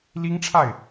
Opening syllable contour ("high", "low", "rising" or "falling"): high